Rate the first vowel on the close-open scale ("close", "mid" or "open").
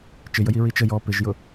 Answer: close